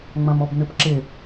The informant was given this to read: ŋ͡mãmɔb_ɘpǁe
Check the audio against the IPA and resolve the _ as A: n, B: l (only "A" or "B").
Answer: A